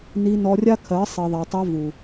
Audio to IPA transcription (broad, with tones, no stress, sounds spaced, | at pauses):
n i˧ n ɔ˧ rʲ a˦ kʰ ɜ˨˦ sˤ i˨ ðˤ a˨ tˤ a˧ v u˨